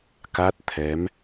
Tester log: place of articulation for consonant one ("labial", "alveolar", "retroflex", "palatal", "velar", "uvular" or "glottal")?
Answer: velar